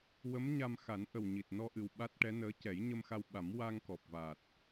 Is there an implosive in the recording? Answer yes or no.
yes